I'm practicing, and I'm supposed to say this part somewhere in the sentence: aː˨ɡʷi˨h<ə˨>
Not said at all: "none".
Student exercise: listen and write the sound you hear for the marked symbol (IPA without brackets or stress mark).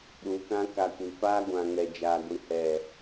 ɛ˨